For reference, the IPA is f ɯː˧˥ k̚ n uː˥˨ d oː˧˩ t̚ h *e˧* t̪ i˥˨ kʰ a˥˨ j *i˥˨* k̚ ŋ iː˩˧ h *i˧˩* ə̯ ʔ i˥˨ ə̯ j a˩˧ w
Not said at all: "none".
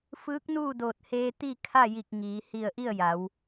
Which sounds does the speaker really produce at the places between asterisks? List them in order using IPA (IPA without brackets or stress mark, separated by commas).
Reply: eː˧, i˧˩, i˧˩